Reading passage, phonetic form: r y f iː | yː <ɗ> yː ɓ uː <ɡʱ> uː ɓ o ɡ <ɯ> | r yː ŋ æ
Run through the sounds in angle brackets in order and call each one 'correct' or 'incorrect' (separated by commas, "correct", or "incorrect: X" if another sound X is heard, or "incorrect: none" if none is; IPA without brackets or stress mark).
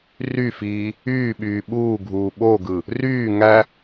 incorrect: ɓ, correct, correct